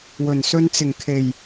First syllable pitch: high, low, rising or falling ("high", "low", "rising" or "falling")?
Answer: low